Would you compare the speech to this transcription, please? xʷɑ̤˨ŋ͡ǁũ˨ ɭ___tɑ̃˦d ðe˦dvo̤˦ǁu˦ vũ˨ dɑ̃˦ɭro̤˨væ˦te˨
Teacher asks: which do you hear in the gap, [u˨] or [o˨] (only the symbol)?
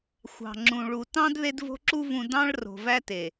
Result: u˨